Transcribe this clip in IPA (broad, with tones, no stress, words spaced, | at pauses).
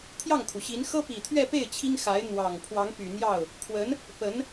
t̪ʰjɑ˥˩ŋkʰu˩ɕi˧˥n xɤ˥pi˨˩t̪ʰɥɛ˥˧pe˥˩ɪ̯ t͡ɕʰi˥ŋxa˧˥ɪ̯ n̪wɑ˨˩ŋ pʰwɑ˧˥ŋpy˨˩n̪jɑ˥˩ʊ̯ | kʰwə˧˥n | pə˧˥n